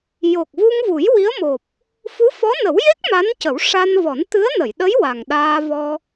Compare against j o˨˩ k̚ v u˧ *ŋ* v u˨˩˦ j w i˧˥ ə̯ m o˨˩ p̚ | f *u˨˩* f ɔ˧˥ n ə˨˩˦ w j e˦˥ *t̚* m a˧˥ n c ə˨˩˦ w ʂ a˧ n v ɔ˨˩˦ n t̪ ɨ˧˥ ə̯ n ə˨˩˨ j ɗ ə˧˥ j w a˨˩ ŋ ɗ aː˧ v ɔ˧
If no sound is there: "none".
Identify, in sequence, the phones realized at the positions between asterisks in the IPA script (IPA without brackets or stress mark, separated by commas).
ŋ, u˧˥, k̚